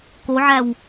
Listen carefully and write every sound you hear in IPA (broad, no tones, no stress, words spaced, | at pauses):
koʕæw